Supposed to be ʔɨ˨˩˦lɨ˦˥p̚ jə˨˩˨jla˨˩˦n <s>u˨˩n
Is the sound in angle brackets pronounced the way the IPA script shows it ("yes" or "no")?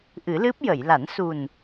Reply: yes